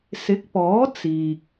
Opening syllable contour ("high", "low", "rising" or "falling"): rising